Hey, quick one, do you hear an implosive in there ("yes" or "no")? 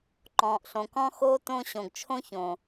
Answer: no